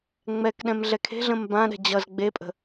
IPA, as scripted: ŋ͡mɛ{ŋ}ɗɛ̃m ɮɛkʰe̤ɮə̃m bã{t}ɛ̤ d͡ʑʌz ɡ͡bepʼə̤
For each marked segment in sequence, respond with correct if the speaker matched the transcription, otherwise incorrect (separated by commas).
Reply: incorrect, incorrect